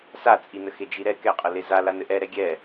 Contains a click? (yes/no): no